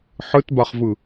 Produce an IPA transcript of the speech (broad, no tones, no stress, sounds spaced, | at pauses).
ħ ɯ t b a χ v ɯ